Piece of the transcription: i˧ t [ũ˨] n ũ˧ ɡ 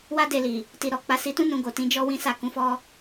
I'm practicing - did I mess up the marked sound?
yes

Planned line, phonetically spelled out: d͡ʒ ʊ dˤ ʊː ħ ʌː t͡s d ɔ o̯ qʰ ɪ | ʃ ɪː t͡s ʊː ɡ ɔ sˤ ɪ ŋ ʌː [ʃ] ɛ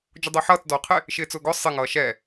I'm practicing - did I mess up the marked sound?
no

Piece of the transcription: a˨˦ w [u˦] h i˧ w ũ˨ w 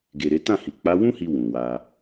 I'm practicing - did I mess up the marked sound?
yes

